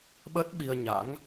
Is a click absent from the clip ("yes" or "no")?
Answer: yes